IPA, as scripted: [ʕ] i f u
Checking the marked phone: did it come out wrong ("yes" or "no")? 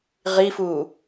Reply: yes